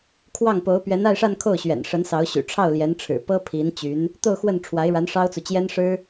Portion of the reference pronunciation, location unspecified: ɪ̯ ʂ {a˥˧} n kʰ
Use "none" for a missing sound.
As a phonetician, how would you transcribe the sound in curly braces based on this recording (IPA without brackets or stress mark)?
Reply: a˥˧